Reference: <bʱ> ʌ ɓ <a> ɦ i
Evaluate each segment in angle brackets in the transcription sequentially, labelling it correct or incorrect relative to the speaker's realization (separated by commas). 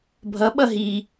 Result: correct, incorrect